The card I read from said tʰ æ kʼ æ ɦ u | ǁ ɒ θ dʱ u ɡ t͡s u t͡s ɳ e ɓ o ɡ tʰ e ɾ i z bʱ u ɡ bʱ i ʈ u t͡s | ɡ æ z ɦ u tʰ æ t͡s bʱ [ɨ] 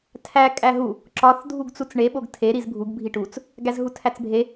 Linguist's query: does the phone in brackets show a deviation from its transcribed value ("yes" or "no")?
yes